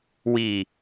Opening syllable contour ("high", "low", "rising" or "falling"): low